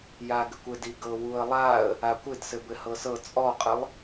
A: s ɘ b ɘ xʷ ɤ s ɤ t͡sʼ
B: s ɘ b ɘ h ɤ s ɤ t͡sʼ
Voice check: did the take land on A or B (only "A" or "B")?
B